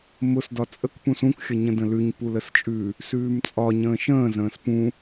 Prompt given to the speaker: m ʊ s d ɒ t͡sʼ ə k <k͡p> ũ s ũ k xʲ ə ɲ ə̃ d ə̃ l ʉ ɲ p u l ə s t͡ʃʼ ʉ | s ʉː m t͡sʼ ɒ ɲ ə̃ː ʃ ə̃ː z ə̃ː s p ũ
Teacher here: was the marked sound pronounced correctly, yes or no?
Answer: no